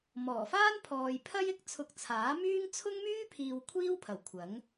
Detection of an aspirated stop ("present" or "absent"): present